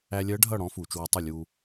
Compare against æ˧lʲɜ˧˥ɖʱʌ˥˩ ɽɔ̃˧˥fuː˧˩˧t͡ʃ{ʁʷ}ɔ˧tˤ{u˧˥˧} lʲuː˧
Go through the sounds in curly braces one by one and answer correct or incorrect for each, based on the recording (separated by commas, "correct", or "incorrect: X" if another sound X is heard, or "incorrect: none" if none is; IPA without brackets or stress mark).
incorrect: w, incorrect: u˥˩